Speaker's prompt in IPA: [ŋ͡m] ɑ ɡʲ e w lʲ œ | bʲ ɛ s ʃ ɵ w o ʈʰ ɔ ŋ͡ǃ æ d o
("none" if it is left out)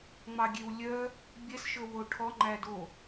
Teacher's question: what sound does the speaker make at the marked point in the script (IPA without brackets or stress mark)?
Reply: ŋ͡m